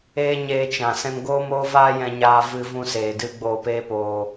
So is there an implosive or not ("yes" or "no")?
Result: no